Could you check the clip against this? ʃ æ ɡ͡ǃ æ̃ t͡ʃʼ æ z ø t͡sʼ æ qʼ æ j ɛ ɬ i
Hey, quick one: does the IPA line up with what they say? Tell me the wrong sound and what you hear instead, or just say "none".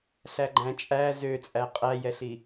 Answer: ʃ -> ɬ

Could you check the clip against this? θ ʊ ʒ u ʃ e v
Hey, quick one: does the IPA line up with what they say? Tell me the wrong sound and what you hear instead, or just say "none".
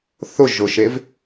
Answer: u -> ʊ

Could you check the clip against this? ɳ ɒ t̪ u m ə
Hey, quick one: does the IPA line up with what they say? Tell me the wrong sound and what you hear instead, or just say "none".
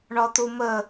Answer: none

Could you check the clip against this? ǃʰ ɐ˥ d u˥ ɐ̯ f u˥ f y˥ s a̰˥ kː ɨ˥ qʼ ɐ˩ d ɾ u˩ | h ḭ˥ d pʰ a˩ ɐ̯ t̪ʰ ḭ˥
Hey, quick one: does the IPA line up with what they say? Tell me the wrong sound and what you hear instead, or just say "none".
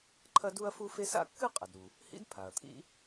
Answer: y˥ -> e˥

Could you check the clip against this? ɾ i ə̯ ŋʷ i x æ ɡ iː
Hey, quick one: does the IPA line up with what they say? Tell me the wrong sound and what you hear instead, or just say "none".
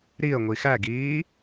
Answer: none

